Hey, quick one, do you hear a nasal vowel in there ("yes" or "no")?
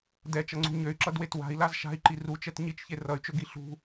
no